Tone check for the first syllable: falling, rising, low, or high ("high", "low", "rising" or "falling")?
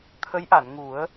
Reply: rising